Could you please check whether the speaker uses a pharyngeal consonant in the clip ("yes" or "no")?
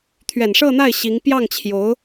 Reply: no